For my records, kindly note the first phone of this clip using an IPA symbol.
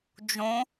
d͡ʒ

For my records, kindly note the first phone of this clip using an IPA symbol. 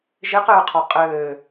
ʒ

